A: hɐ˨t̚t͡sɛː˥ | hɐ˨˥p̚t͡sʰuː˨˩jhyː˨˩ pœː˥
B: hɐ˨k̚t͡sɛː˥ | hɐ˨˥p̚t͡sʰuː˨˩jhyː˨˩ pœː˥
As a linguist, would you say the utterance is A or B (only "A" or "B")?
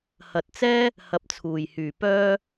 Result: A